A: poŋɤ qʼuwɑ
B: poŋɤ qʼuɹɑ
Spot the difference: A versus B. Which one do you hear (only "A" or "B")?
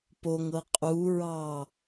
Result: B